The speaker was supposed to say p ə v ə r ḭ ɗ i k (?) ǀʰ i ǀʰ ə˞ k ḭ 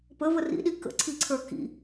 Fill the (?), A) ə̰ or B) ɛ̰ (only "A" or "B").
A